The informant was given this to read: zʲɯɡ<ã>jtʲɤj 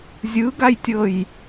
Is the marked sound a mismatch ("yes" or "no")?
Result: yes